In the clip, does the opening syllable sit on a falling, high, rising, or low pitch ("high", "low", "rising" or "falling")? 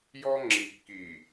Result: high